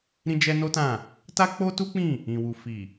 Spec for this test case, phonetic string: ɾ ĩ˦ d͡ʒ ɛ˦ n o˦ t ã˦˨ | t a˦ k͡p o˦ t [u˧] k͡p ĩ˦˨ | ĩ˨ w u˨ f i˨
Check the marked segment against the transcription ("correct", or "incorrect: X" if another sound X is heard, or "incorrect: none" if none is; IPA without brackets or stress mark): incorrect: u˦